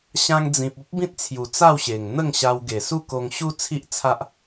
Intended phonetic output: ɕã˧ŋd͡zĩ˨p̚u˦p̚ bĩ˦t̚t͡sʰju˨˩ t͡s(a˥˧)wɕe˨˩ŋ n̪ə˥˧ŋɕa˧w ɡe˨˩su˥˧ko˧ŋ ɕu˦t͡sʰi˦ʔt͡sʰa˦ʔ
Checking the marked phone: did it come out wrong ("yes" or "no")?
no